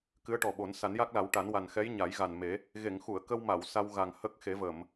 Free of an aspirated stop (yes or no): yes